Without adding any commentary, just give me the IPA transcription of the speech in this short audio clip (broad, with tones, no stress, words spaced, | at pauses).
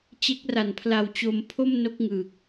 t͡ɕe˦˥k̚ ra˨˩npʰla˧wt͡ɕo˧m pʰo˥˩mno˦˥k̚ŋɯː˨˩k̚